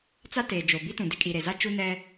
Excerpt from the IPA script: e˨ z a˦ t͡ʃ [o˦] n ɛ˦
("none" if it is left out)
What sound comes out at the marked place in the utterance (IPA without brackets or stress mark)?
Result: u˦